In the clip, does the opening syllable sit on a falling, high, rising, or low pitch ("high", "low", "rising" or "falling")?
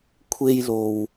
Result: high